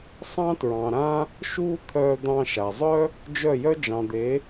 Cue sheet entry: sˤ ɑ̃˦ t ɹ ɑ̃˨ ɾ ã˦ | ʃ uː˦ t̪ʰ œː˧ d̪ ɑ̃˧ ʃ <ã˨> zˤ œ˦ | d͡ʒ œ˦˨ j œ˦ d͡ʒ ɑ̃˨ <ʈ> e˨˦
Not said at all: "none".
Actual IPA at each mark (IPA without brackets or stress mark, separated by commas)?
a˨, d̪